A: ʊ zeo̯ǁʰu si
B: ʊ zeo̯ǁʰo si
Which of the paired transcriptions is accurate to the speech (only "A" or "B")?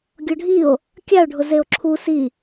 A